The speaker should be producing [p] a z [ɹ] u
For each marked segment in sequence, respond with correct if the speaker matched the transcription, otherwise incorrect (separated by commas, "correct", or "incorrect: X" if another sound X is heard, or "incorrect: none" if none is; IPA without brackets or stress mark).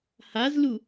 incorrect: h, incorrect: l